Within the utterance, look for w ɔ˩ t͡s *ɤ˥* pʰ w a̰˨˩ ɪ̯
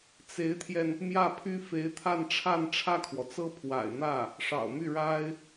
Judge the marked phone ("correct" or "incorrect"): correct